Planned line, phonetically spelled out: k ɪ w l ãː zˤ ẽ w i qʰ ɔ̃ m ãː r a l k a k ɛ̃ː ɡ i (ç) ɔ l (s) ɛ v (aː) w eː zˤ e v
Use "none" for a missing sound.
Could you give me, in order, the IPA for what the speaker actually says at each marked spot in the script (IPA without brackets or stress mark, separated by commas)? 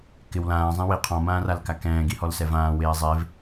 h, s, ãː